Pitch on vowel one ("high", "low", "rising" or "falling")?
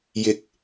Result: rising